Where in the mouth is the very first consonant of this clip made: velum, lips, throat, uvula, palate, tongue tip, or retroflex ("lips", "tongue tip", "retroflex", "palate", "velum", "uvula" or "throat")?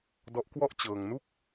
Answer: tongue tip